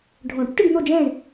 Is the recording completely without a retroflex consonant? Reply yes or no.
no